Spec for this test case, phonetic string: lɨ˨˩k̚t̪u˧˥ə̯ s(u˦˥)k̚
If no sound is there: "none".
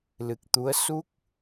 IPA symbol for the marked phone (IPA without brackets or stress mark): u˦˥